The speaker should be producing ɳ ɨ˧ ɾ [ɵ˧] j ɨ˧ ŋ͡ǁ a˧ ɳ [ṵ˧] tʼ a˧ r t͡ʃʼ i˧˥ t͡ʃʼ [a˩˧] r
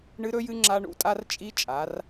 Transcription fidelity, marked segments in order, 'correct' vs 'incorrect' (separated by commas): correct, correct, correct